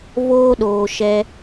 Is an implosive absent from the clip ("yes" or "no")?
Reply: no